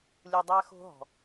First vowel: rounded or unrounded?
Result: rounded